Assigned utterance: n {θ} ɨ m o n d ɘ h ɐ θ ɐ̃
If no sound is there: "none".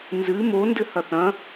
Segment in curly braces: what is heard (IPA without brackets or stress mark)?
z